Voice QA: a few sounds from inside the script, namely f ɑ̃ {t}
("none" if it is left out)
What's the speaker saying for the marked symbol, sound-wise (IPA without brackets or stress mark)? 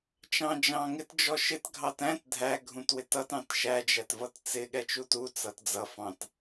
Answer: t